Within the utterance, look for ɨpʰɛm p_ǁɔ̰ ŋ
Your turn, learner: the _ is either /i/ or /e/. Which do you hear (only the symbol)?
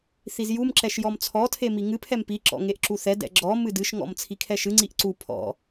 i